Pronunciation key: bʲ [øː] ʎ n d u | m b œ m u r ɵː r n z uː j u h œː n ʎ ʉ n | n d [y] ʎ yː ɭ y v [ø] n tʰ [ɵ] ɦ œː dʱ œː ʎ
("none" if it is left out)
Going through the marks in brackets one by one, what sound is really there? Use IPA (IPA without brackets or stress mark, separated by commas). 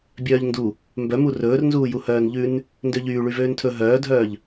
œː, ø, øː, ɵ